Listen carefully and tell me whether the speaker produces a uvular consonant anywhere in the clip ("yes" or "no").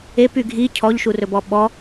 no